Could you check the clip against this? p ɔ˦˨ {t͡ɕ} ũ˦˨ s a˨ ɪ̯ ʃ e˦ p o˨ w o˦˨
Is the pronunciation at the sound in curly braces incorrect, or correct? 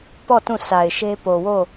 incorrect